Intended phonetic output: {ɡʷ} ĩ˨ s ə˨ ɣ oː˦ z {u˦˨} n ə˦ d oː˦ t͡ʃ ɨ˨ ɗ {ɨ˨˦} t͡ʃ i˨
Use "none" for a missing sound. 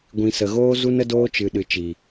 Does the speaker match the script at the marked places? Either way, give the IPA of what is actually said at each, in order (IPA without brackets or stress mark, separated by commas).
ɡʷ, u˦, ɨ˨